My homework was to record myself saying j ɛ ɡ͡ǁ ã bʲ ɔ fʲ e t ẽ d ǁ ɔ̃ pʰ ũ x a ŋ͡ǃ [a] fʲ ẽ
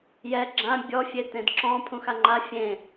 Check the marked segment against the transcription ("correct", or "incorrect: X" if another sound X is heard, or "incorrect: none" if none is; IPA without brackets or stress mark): correct